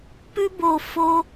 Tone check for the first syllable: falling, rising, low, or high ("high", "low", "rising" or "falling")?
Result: high